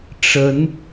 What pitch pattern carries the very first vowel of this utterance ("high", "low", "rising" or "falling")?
rising